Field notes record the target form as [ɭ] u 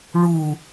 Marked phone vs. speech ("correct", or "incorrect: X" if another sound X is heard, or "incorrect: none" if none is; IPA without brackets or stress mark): correct